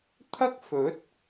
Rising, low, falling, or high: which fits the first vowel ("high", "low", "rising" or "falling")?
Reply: high